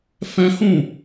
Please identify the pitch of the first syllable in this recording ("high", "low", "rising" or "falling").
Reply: high